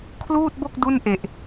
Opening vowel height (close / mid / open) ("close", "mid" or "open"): close